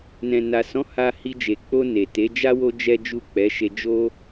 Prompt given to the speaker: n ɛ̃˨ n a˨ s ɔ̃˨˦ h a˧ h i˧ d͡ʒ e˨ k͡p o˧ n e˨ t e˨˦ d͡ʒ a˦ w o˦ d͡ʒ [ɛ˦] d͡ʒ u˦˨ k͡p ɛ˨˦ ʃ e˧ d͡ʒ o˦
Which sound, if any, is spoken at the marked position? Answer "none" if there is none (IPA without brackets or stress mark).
ɛ˦